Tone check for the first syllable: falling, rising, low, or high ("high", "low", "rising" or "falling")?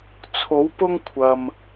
rising